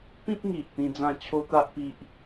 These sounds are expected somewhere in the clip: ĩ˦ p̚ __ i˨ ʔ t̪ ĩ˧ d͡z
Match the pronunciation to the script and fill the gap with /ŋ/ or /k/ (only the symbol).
ŋ